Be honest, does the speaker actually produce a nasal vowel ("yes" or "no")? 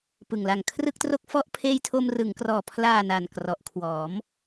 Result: no